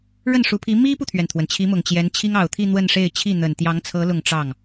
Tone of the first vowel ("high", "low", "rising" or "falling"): falling